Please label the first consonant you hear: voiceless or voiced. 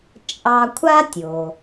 voiceless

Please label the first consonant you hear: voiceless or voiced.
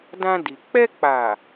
voiced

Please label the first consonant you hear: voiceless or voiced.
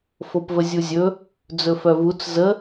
voiceless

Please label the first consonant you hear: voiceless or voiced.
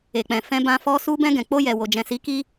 voiceless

